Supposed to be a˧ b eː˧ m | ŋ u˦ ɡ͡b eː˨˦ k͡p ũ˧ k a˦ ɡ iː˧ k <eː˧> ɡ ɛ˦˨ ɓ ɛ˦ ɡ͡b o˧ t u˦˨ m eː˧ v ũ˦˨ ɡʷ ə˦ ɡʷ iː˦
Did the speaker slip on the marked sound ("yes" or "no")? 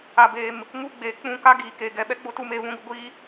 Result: no